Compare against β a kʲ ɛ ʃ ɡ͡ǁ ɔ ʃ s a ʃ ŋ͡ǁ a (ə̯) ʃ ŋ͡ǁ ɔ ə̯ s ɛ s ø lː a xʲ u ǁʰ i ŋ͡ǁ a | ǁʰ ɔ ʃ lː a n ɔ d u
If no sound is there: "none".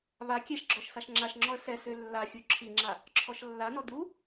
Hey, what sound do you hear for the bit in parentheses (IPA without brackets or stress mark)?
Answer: none